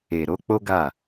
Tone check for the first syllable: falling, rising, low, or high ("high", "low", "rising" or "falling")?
low